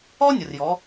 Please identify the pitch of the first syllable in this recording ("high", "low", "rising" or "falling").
high